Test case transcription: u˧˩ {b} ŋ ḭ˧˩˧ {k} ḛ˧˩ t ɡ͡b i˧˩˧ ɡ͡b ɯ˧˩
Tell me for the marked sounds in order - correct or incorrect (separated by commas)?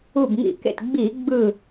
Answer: correct, correct